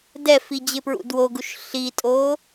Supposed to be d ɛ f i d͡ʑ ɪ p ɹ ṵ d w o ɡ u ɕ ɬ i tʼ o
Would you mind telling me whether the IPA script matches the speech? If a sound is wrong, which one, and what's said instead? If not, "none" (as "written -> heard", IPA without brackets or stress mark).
ɕ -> ʃ